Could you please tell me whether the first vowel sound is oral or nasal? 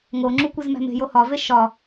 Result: oral